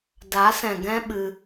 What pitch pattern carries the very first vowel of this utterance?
rising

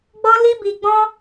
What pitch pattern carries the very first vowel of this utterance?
high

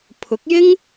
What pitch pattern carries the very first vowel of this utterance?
rising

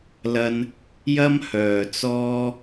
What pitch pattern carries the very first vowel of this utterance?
high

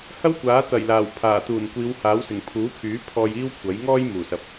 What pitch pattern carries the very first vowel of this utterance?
high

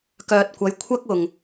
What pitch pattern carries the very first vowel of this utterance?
low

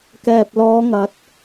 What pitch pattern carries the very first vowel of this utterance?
low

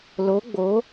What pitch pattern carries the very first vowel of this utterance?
rising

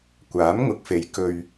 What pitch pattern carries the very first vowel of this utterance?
rising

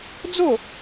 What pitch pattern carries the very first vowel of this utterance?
falling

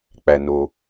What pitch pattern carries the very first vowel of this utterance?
low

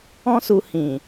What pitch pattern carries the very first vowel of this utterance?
high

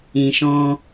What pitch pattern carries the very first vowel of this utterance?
low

